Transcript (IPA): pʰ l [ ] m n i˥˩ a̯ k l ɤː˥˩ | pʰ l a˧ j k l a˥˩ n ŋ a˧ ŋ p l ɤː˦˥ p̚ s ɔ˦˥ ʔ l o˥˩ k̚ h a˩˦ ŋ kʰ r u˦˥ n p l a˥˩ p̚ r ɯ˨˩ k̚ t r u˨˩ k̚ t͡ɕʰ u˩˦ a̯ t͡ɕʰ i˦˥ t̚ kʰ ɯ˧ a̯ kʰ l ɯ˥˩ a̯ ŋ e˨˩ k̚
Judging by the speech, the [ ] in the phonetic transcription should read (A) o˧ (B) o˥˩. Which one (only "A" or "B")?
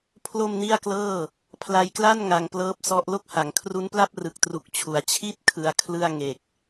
B